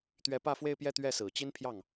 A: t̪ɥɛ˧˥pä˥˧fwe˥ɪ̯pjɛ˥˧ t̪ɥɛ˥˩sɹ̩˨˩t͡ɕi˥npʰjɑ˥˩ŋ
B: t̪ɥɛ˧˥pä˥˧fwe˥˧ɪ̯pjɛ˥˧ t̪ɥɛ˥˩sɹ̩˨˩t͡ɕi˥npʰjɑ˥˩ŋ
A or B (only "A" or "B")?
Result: B